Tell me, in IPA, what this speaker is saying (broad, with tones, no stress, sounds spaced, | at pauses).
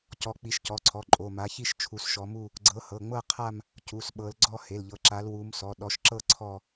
c ɔ˨˦ k͡p i˨˦ ʃ c ɔ˩˧˩ ǀʰ ɔ˩˧˩ ǃʼ o˩˧˩ m a˨˦ ç i˥˧ ʃ t͡ʃʰ u˨˦ s ʃ ɔ˨˦ m u˥˧ | ɡ͡ǀ ɤ˨˦ h ɤ˩˧˩ ŋ͡m ɤ˥˧ qʰ a˥˧ m | c u˩˧˩ s ɓ ɤ˨˦ l ɡ͡ǀ ɔ˥˧ h e˩˧˩ l ʎ ɤ˨˦ ǁ a˨˦ l w u˨˦ m s ɔ˩˧˩ ɗ ɔ˨˦ ʃ ǁ ɤ˥˧ ǀʰ ɔ˥˧